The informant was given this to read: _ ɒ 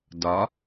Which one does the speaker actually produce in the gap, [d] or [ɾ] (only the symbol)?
d